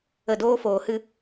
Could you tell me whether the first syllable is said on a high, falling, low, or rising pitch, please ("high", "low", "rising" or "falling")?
low